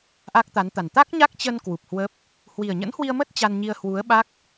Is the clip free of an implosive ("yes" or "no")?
no